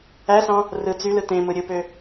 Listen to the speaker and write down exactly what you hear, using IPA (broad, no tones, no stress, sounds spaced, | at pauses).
æ s ɑ̃ | r ɯ t͡s y l ɯ t ẽ m ɯ ɾʲ ɯ p ø